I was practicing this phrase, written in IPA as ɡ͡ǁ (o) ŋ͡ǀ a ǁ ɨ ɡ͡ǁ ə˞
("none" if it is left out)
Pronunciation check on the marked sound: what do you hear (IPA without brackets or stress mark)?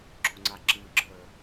o